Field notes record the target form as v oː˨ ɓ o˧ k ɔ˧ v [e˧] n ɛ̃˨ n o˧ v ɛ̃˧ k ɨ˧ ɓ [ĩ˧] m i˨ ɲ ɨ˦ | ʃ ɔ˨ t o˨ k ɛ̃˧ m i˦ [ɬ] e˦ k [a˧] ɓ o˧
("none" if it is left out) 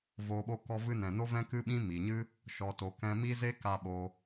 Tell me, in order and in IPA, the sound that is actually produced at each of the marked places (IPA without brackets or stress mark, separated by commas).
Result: ɨ˧, ĩ˧, z, a˧